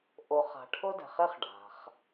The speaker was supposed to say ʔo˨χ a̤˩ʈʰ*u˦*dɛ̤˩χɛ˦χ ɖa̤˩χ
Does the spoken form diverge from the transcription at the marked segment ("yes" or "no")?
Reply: yes